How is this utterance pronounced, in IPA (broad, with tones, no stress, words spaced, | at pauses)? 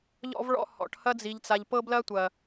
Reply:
ʎɔ̰˧vɭɔ̰˧ hɔ̰˨ʈhɐ˧d͡zi˨ʎt͡sa˨ʎ pɤ˧blɐ˧tʷɐ˨